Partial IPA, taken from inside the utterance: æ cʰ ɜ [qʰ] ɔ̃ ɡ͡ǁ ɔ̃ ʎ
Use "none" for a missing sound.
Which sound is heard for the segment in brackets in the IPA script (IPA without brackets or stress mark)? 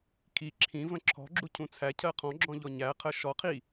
qʰ